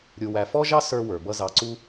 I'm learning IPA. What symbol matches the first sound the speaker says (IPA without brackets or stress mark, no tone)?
ɾʲ